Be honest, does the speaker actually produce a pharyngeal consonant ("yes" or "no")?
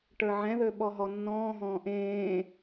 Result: yes